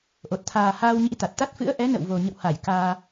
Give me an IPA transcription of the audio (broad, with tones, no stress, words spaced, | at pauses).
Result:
ʔo˨˩t̚t̪ʰaː˨˩ haː˧wɲḭ˧˥t̪a˨˩t̚t̪a˦˥t̚ fɨ̰˧˥ə̯ʔɛ˨˦nə̰˧˨wvo˨˩ ɲə̰˧˨wha˧˩j kaː˧